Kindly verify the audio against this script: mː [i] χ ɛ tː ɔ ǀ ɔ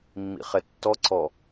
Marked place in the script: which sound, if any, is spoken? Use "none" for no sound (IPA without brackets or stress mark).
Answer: ḭ